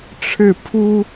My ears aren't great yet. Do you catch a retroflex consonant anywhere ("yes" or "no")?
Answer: yes